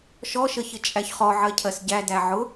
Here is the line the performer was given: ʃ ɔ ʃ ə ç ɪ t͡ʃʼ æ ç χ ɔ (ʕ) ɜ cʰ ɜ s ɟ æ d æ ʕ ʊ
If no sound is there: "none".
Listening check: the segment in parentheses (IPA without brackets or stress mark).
ʕ